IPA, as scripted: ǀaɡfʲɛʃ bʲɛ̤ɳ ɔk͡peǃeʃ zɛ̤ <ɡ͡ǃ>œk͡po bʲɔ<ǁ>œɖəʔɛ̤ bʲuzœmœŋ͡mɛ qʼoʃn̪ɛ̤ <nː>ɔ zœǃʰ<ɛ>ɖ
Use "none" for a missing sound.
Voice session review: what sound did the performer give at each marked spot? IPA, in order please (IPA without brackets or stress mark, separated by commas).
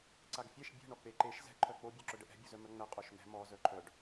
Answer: ǃʰ, ǁ, m, œ